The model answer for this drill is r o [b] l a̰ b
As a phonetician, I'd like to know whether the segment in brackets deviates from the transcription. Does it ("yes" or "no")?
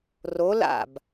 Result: yes